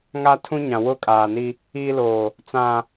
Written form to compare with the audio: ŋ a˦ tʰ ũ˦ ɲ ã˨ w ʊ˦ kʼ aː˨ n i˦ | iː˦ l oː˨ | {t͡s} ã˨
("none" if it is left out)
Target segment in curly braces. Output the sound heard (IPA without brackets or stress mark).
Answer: t͡s